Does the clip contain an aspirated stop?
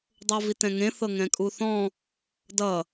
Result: no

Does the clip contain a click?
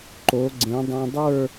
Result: yes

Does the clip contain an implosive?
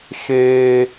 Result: no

